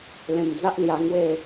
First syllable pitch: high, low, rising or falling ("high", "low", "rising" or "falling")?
low